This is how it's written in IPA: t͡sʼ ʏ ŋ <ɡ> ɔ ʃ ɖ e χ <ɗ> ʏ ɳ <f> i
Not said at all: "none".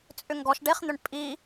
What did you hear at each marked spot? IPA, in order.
ɡ, n̪, pʼ

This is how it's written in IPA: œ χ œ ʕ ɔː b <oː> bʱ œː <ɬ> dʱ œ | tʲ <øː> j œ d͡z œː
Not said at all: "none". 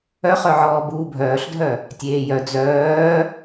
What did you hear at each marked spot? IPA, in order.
uː, ɬ, eː

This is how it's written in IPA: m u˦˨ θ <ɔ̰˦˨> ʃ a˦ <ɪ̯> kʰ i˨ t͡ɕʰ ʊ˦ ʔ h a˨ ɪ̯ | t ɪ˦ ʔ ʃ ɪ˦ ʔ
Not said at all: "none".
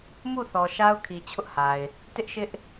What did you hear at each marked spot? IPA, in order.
ɔ˨, ʊ̯

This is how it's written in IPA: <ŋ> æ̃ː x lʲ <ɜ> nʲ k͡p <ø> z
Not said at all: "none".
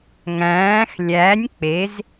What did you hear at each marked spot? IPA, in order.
ŋ, æ, e

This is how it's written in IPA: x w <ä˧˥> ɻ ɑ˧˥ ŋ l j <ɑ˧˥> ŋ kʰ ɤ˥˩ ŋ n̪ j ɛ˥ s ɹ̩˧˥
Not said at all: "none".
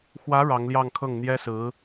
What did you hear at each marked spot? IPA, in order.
ä˧˥, ɑ˥˧

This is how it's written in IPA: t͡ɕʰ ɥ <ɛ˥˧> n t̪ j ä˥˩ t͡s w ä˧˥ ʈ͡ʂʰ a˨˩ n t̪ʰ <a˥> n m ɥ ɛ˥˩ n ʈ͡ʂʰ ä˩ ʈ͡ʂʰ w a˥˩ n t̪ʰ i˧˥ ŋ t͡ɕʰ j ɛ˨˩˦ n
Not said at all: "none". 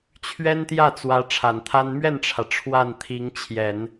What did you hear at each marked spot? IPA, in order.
ɛ˥, a˥

